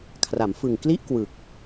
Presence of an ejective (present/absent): absent